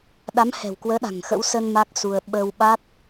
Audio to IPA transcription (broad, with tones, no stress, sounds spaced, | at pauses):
ɗ a˨˦ m h ɛ̤˨˩ w k w əː˨˦ ɗ a̤˨˩ ŋ x ə̰˧˥ w s ə˧ n m a˦˥ k̚ s u˧ ə̯ ɓ ə˧ w ɓ a˦˥ t̚